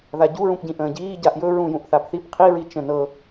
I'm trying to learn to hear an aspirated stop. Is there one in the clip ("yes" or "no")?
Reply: yes